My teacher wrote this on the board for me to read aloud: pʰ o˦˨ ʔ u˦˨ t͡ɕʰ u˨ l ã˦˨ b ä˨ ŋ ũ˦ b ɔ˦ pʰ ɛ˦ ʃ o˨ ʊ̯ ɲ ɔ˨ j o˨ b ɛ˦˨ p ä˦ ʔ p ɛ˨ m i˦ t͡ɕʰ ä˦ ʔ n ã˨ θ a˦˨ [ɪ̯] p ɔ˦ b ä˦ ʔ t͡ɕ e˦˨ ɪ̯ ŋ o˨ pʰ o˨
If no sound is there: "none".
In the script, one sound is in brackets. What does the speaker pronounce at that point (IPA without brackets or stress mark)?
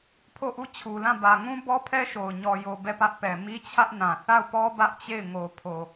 ʊ̯